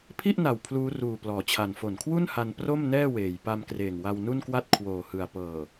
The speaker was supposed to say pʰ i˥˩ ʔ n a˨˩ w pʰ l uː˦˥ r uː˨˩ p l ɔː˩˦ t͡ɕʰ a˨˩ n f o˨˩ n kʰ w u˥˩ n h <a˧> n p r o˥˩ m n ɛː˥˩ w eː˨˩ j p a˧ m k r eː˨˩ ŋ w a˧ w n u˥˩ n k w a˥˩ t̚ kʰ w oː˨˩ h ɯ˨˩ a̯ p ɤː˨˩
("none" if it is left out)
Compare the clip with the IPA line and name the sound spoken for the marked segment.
a˧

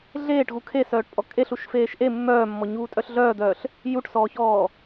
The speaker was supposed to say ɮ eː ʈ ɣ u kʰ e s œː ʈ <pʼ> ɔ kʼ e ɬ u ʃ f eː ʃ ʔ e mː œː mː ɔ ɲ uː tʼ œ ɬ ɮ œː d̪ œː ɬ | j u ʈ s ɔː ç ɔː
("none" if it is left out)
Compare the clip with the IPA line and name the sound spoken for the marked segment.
pʼ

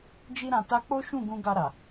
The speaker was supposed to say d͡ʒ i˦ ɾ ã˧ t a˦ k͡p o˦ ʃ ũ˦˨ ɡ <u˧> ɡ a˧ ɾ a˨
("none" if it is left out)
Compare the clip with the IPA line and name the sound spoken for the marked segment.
ũ˧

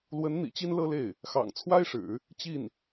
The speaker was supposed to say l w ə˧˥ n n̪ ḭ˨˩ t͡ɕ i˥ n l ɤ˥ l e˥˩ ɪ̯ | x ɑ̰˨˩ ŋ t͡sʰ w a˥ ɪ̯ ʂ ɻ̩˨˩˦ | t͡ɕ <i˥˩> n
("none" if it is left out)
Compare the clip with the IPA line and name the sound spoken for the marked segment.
i˥˩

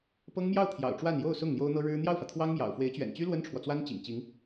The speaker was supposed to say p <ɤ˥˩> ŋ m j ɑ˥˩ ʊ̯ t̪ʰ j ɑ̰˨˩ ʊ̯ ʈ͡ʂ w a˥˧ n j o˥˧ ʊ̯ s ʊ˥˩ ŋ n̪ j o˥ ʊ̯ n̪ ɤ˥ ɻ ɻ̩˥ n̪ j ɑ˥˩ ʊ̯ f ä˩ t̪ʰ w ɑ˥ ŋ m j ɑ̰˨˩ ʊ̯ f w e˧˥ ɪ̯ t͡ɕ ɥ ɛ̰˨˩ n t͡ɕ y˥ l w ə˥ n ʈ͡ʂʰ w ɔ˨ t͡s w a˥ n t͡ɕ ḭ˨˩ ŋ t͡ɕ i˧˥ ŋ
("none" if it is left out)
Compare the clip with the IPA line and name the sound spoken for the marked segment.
ɤ˥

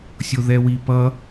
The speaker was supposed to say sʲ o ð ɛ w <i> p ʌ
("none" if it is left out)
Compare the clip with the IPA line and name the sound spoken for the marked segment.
i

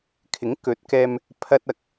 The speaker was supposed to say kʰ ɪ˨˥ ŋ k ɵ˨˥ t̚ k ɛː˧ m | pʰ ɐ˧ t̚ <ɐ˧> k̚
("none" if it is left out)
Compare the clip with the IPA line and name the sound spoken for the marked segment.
ɐ˨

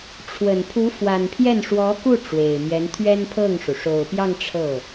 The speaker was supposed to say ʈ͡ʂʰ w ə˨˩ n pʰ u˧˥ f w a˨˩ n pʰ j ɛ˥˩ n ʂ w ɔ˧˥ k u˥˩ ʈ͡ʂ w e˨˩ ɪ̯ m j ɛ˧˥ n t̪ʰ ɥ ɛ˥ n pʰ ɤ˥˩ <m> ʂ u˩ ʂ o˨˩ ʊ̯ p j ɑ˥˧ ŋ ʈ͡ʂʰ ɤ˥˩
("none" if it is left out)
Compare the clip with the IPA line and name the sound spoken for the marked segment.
ŋ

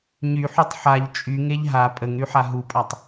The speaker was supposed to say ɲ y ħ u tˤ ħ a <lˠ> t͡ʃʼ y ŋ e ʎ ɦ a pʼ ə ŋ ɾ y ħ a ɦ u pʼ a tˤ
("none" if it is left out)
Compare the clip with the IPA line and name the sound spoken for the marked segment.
ʎ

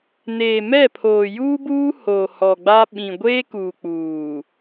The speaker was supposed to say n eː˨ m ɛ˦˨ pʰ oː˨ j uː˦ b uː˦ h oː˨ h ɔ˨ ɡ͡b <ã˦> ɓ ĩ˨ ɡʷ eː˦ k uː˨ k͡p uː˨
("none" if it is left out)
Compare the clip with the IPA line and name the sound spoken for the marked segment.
a˦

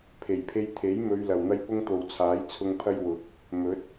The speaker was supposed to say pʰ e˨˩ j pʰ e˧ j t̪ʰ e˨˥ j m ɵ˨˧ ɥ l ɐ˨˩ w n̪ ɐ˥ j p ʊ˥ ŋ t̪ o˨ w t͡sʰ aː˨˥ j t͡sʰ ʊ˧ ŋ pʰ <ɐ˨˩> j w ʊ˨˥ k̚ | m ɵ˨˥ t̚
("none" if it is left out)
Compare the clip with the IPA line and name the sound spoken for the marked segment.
ɐ˥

